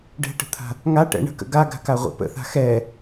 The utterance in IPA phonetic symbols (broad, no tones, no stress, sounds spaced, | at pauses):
ɖ ɛ̤ ʈ ə̤ t̪ʰ a̤ | ŋ a ʈ ɛ̰ ɳ ə̤ k ə̰ ɡ a ɡ a̤ k a ʁʷ ɛ̰ p ə̰ θ a̤ x ɛ